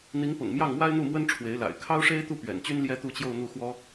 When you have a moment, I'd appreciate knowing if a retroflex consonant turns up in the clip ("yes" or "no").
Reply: yes